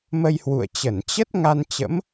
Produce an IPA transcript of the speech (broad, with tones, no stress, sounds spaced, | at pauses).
m ə˧ j h w ṵ˧˨ ə̯ t͡ɕ ə˧˩ n t͡ɕ ə˦˥ t̚ ŋ a˧ n t͡ɕ ə̰˧˥ m